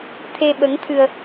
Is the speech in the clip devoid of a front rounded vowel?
yes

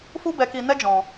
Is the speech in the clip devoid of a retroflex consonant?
yes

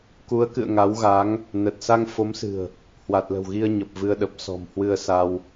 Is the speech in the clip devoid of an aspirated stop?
yes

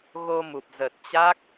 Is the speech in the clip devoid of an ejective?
yes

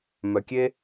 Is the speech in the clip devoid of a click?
yes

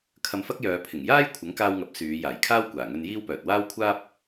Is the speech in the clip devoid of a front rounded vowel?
no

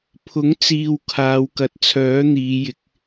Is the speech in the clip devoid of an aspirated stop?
no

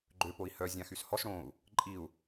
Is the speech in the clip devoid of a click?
no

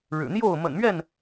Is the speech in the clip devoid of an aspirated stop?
yes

